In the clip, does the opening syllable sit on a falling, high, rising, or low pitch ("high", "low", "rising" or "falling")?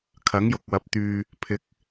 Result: rising